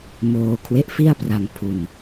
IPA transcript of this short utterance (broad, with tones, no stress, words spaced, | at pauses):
moː˧ kʰwe˦˥ʔfi˥˩a̯pra˧ŋ pʰu˧n